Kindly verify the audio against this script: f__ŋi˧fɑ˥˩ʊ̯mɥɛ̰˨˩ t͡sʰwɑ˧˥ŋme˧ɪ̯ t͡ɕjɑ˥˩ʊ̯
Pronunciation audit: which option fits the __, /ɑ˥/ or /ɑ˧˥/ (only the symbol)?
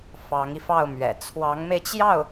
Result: ɑ˧˥